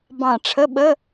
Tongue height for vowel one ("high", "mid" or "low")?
low